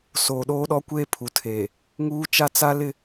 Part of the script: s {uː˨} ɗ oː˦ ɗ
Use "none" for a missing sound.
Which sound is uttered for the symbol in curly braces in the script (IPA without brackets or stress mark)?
oː˨